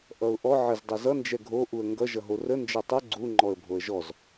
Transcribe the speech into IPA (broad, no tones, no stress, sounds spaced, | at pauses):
ʔ ʌ ʊ̯ ʔ ɔ ʕ ə z dˤ ɛ z ʌ n d͡ʒ ɛ ɡʱ o ʔ u ə̯ ŋ ɡ ʌ ʒ ʌ ɦ o r ə n d͡ʒ ʌ tˤ ə ɡ͡ǀ u ŋ͡ǃ ɔ ə̯ bʱ o ə̯ ʒ ɔ z